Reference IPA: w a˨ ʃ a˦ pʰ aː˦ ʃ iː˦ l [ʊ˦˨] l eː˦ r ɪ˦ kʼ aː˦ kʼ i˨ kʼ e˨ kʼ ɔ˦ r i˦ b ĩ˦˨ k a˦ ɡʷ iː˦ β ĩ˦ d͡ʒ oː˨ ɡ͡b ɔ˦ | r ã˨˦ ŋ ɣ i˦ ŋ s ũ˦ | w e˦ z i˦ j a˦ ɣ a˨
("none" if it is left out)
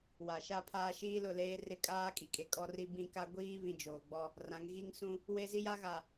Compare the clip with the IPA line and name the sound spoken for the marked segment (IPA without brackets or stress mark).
ʊ˦˨